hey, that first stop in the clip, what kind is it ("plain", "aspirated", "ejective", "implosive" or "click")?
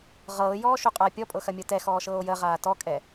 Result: ejective